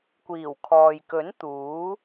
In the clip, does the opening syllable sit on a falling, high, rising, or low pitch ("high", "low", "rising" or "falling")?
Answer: low